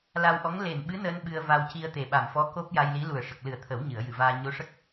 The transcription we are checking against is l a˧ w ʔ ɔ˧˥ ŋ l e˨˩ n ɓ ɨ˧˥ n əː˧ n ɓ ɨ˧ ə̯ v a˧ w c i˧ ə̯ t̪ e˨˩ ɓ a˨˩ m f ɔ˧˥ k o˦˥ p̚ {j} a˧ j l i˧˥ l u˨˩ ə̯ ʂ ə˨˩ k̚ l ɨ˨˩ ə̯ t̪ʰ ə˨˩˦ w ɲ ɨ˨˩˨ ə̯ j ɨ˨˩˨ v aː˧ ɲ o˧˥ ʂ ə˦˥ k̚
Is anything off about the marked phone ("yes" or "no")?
no